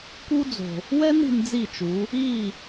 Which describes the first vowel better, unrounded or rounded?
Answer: rounded